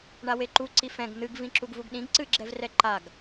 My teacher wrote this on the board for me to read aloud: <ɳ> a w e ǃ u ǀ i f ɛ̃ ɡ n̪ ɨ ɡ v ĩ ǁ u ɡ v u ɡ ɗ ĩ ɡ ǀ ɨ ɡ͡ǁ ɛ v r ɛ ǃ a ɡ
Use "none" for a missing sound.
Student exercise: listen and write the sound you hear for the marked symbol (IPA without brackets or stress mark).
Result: ɳ